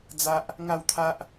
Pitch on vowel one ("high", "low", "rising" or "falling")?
high